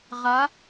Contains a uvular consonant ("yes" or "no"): yes